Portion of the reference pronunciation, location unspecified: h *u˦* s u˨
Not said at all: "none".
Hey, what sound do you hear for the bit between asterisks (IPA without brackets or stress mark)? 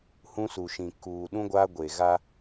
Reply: ũ˦